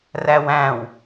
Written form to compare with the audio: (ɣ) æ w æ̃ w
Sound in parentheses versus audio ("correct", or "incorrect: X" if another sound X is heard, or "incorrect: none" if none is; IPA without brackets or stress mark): incorrect: r